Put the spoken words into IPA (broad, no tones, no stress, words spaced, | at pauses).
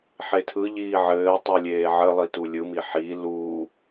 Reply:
ħetʰɯʎiː ʕɘːtˤu lʲeːʕɘlˠi tulʲɯmi ħi luː